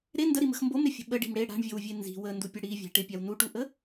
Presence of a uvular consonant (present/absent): absent